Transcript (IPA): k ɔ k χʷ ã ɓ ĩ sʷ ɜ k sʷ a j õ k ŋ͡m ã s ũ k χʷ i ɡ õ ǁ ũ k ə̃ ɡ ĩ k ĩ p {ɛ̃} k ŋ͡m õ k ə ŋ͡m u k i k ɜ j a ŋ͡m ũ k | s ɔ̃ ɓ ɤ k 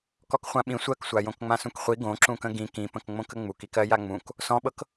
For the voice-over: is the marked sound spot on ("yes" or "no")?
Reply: no